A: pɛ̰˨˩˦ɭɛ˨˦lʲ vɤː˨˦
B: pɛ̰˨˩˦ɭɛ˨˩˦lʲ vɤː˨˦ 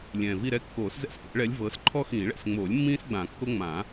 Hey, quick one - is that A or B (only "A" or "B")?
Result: A